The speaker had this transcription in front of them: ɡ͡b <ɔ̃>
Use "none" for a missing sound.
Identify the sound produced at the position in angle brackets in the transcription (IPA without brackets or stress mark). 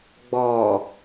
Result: ɔ